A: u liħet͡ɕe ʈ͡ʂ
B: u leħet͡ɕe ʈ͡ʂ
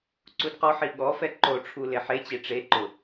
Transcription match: B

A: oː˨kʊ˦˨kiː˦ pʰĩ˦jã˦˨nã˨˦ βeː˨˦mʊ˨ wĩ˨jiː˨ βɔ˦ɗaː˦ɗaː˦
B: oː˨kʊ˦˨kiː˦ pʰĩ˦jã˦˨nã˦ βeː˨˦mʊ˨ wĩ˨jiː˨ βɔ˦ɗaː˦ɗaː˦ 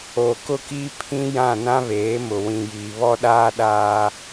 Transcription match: B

